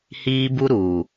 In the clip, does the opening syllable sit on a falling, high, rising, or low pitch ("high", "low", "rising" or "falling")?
high